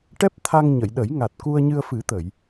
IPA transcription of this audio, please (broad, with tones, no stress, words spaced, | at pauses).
ʈɛ˦˥p̚t̪ʰa˧ŋɲə˨˩˨jɗə˨˩˦j ŋa˨˩t̚ku˧ə̯ɲɨ˧ə̯fɨ˨˩˦ t̪ə˨˩˨j